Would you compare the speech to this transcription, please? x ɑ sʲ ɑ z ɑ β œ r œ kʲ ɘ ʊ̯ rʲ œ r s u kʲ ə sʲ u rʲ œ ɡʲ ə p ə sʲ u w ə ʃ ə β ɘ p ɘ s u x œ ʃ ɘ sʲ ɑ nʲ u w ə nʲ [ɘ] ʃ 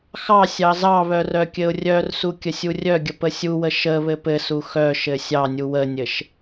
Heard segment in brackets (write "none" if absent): ɘ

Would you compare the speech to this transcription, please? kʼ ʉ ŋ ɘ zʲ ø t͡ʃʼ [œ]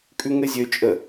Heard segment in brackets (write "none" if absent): ə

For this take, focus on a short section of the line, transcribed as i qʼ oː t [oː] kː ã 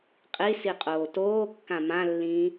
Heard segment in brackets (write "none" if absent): oː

